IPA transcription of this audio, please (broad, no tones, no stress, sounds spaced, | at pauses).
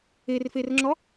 e r f e r ŋ͡ǁ ɔ